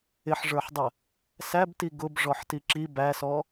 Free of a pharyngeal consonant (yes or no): no